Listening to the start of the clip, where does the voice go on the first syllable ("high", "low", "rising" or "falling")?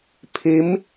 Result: rising